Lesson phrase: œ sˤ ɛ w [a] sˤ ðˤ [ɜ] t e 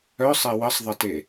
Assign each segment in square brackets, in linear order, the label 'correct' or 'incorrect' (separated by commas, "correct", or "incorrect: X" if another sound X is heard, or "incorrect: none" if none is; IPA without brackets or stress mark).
incorrect: ə, correct